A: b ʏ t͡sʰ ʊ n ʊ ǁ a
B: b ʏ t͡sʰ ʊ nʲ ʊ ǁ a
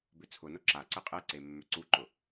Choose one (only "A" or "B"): A